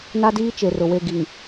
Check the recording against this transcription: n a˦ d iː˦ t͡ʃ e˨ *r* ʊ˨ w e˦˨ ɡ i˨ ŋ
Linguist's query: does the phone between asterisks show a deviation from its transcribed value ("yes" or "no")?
no